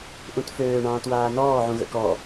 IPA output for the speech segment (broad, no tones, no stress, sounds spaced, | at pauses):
ʔ ũ t f øː ɳ ɑ̃ː t w aː n ɔː ʕ ũ ɣ ə̰ k ɔ